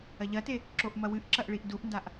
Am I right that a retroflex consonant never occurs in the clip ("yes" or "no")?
no